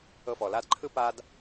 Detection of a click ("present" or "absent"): present